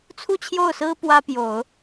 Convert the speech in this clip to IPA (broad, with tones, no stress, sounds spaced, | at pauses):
t͡sʰ u˥˧ t͡ɕʰ j o˥˩ ʊ̯ s ɹ̩˥ p w ä˥ p j o˨˩˦ ʊ̯